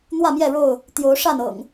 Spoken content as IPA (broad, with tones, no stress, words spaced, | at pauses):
n̪wä˥˨mjɛ˥˨ɻo˥˨ʊ̯ | t̪jo˨˦ʊ̯ʂa˥˨n ɤ̰˨˩ŋ